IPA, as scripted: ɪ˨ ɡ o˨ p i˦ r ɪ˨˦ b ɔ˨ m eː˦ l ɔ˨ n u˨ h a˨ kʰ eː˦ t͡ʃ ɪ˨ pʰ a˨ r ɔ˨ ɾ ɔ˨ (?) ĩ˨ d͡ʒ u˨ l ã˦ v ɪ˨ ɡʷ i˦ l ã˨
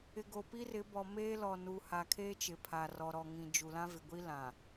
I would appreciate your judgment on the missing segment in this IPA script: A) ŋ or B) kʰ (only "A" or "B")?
A